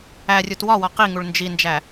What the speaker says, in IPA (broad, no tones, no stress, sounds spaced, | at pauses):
æ rʲ u t w ɒ w ɒ q i ŋ u ɭ n d͡ʒ i n d͡ʒ æ